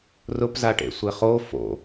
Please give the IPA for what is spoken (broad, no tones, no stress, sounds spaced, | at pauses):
r ʊ p z a ʈ ḛ sʷ e χ o f o̰